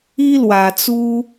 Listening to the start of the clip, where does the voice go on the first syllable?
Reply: high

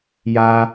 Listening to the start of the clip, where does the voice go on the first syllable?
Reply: high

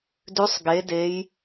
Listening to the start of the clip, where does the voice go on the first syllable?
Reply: rising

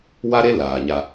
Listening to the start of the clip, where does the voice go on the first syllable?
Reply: high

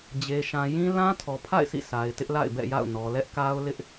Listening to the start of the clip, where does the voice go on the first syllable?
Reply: low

